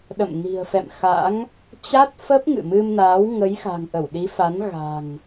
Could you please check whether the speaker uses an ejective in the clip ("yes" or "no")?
no